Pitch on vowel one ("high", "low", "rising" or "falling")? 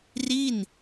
falling